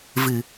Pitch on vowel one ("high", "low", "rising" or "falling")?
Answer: low